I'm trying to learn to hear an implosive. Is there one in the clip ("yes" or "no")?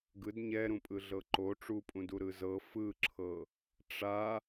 no